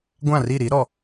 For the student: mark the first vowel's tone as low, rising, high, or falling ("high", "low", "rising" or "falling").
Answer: falling